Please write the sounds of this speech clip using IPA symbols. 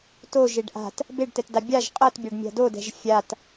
toʒeɖ ʔa̤t | beɖtɛtda bʲaʒ qʼɤtbʲaɖmʲa̤ dodɛ̤ʒ fʲat

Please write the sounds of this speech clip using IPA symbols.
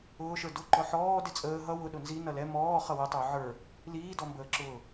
ʊːʃə˞ dʊ ǃɔħɔː dɪt͡sʼəː ɦʌ wʊ ɗʊnzi nʌlɛ mɔː χʌwətˤə˞ ʕə˞ | liːdɔmbəːǁʊː

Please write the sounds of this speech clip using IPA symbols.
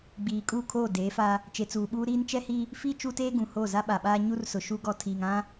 ɡ͡biː˨kʼu˦˨kʰoː˦˨ deː˨˦fa˦ | t͡ʃe˨t͡suː˨ɓuː˦ ɾiː˦nt͡ʃɛ˦hi˦ | fi˦ t͡ʃu˦teː˦ɡũ˨ho˦˨ za˦ɓa˨ɓaː˦ ɲu˦rsʊ˨ ʃu˦ɡɔ˦ tʰiː˨ŋã˦

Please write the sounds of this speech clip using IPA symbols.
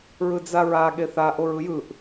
ɹɯd͡zaɹa ɠeθa ʔoɹɯjɯʔ

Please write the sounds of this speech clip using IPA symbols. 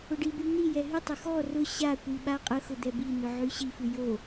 ʊɖiby ni jɛɦytˤʊ xɔ rʊ ɕakʷi ɓaqʼəxʊ d̪ɛbinʊ ʕyɕifʉ jo

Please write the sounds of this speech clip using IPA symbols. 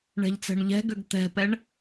ɳɛ̤ʎt͡sɛ̤ɳʎɛ̤ɡøɡ t̪ɛ̤pɛɳ

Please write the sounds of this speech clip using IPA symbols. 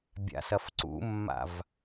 bʲa̰sɐfǀṵmːa̰v

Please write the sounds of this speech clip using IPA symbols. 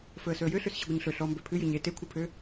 fɵə̯sɵə̯jøɬøs ɕɨɡʷɨɲɬɵ ɬɔm bøpʰɨjɨ ɲe tekʷʰɨpʰø

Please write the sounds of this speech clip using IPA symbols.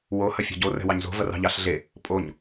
wo hɐfʲɑ̤ɟo rɛ̤wɑɲzo̤ vɐrɑ̤ʎɑɬɮe | pʼoɲ

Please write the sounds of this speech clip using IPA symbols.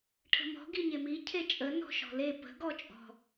ʈʰə̤mɔ̤ ɡiɲemi cʰet͡ʃʼə nɔ̤ʃɔ̤le pə̤ ɡɔt͡ʃʼɔ̤

